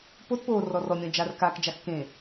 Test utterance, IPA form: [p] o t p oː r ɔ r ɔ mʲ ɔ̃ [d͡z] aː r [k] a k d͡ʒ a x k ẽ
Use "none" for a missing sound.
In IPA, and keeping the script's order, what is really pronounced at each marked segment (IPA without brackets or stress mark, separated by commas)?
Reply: p, d͡ʒ, k